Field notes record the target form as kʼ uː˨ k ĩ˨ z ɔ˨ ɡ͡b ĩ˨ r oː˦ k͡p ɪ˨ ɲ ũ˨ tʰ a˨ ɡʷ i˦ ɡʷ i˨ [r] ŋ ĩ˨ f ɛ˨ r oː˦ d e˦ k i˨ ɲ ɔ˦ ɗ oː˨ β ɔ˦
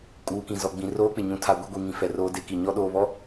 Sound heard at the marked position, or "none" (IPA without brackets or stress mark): none